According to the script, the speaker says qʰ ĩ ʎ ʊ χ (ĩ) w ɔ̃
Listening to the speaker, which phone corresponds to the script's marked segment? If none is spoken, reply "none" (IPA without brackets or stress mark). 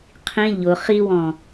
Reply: i